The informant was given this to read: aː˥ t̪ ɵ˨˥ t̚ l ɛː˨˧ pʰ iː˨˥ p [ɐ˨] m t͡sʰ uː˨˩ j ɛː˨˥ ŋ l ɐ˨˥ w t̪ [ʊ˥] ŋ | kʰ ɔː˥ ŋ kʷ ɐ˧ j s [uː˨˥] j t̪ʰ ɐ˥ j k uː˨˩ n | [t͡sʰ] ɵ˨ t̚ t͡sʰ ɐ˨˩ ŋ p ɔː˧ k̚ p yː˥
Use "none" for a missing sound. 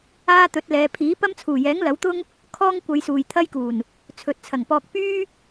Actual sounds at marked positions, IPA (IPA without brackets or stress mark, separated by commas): ɐ˥, ʊ˥, uː˨, t͡sʰ